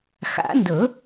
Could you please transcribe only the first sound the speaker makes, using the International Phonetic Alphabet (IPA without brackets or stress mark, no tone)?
x